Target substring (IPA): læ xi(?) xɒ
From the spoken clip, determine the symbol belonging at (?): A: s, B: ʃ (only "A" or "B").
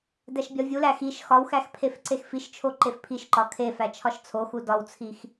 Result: B